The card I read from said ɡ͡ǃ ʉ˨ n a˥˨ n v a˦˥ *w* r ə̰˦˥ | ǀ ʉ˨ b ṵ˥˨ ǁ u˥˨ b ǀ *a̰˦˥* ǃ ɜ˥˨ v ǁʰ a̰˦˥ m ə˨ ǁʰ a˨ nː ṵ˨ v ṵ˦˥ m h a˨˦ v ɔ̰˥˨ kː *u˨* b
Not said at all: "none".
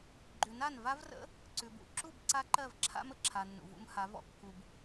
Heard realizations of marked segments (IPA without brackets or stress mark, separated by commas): v, a˦˥, u˨